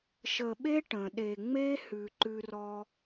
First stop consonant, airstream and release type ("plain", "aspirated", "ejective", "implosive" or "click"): implosive